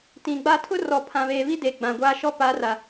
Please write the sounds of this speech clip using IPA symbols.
t ĩ˨ ɡ͡b a˦ tʰ ʊ˦ r ɔ˨ pʰ ã˨ β eː˨ β i˦ d e˨ ɡ͡b ã˨ ɡʷ aː˦ ʃ ɔ˦ p a˨˦ r a˨

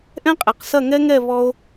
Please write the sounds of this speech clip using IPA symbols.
ʔ ɛ̃˦ qʼ e˨ q s ɐ˦˨ ŋ ɛ˦ ŋ ɛ˦˨ β ɔ˧ o̯

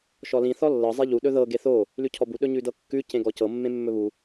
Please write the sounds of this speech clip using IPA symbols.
ʃ ɔ l ĩ θ ɔ lː ɤ zˤ e ʎ u ɗ ɵ ð ɤ ɡ e θ o | l ʉ cʰ ɔ b u ɗ ɵ ɲ ʉ d ɤ kː ʉ c ẽ ɡ ɔ c ɤ mː ẽ mː ɵ β u

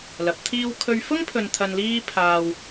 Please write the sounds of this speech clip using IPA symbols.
l ɐ˨˥ p̚ t̪ʰ iː˥ w kʰ ɵ˥ ɥ f ʊ˥ ŋ pʰ ɵ˨ n t̪ʰ ɐ˧ n l iː˥ pʰ aː˧ w

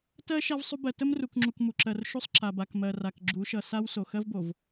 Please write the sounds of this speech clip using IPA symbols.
t ɜ˦ ʃ a˦ v sˤ u˦ b ɜ˨ t ə˦ m r u˨ k ŋ͡ǁ u˨ k m u˨ ǁ ɜ˨ r ʃ u˦ sˤ ǁ a˨ b a˨ k m ɜ˨ r a˨ k ɡ͡ǁ u˨˦ ʃ ʌ˨ s a˦ w s o˨ x ɜ˦ v b o˨ v

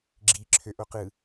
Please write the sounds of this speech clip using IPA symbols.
ɡ͡ǁ i ǁʰ ø ʔ o q ɯ

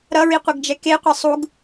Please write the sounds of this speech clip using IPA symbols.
ɾ ʌ ɹ i qʷ ʌ ɡ d͡ʒ ɛ k e qʷ e sˤ u ɡ

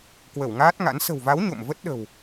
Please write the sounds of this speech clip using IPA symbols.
k w ə˧˩ w ŋ aː˦˥ t̚ ŋ a̰˧˥ n s ə̤˨˩ w v a˨˦ w ɲ o̰˧˨ m v ə˦˥ t̚ ɗ ə̤˨˩ w

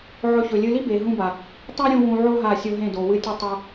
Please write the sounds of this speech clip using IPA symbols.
ʕ ɵ˧ ç ɵ˨ lʲ ɨ˧ l i˦ b e˨ ɦ ũ˧ b a˨ | tˤ o˦ ɾʲ ũ˧ w ũ˧ ʕ o˦ ɦ a˦˨ sʲ o˦ ɦ ẽ˦˨ d o˨ w ɨ˦ tʲ u˦ tˤ ɐ˦

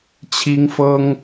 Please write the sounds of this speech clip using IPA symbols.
t͡ɕʰ i˦ ŋ f ɤ˦ ŋ

